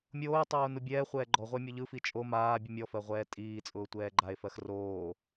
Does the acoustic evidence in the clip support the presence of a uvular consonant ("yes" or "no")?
yes